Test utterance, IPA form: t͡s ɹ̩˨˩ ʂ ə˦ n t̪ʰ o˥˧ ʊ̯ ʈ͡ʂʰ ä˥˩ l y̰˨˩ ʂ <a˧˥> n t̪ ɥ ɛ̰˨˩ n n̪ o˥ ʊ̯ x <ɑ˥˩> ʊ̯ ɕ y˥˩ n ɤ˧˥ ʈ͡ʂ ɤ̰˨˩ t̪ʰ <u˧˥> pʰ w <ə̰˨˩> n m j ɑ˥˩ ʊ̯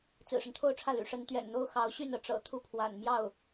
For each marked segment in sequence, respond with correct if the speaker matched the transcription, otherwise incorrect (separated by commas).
incorrect, incorrect, incorrect, incorrect